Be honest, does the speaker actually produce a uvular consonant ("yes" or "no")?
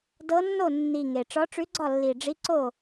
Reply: no